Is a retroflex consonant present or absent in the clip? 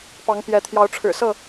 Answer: present